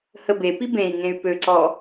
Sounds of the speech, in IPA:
h ə b e p i b ẽ i̯ ŋ ẽ y̯ p ø ǀ ɔ

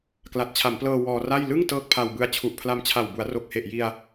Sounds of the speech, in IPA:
k l a˨˩ t̚ t͡ɕʰ a˩˦ m p l ɤː˧ w ɔː˧ r a˥˩ j l ɯ˥˩ ŋ t ɤː˥˩ k̚ pʰ a˧ w b ɯ˦˥ a̯ t͡ɕʰ u˨˩ ʔ pʰ l a˧ m t͡ɕʰ a˨˩ w b u˩˦ a̯ r o˨˩ k̚ h e˨˩ ʔ j i˧ a̯

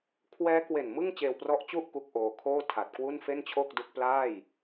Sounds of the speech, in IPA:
kʰ w ɛː˦˥ k w e˨˩ n m ɯ˥˩ ŋ t͡ɕ eː˧ w p r ɔ˦˥ ʔ t͡ɕ u˥˩ ʔ k u˥˩ k̚ ʔ oː˧ kʰ oː˥˩ tʰ a˨˩ t̚ k w u˥˩ n f e˥˩ n t͡ɕʰ o˥˩ k̚ d u˦˥ k̚ p l aː˥˩ j

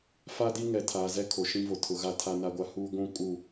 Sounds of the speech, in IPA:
f a˦ d i˦ ŋ ɛ˨ tʰ aː˨ z ɛ˦ kʰ o˨ ʃ ĩ˦ v o˨ tʰ ʊ˨ ɣ a˦˨ tʰ a˦ n a˦ ɡʷ a˦ h uː˦ ɡʷ ũ˦ kʼ u˦˨

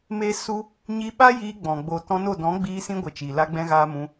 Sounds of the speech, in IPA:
m e˦ s u˦ | ɲ i˧ ɓ a˦ j iː˧ ɡ͡b ɔ̃˨ ɡ͡b o˨ t ɔ̃˧ n o˦˨ d ɔ̃˨˦ ɡ͡b iː˧ s ĩ˧ ɡʷ ə˨ t͡ʃ i˨ l a˧ ɡ͡b ɛ̃˧ ɣ aː˧ m ũ˧

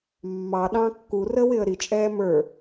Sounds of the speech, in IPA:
mː ɑ ɗ ɑ̃ kː u r ə w ɪ ə̯ ɾ i t͡ʃʼ ɛː m ə˞

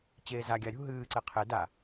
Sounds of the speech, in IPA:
t͡ɕ eː z a ɡʲ a ɾʲ ṳ ɦ ɨː ǀ e qʰ e d a

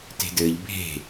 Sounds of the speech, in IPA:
t e̤ d ɘː ʎ bʱ e̤

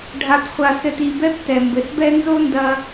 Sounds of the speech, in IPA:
ɖʱ a˨ t χʷ a˨ s ɘ˨ t i˨ b ɛ˦ p t ɛ˨ m b ɘ˨ s b ɛ˦ n z o˦ n d ɐ˧

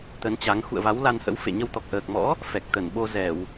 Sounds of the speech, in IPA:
t̪ ə˨˦ n t͡ɕ a˨˦ ŋ x ṵ˧˨ ə̯ v a˨˦ w l a˧ n h ə̰˧˥ w f ḛ˧˨ ɲ ə˧ w t̪ ɔ˨˩ k̚ ʔ əː˨˩ k̚ m ɔ̰˧˥ | f ɛ˨˩ k̚ t̪ ə˧˩ n ɓ o˧ z ɛ˧˩˨ w

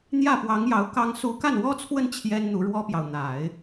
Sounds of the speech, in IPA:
n̪ j ä˥˩ p w ɑ˧˥ ŋ j ɑ˧˥ ʊ̯ k ɑ˥ ŋ s u˥ k a˥˩ n w ɔ˥ t͡sʰ w ə˥˩ n t͡ɕʰ j ɛ˥ n n̪ u˧˥ ɻ w ɔ˥ p j ɑ˨ ʊ̯ n̪ a˨˩˦ ɪ̯

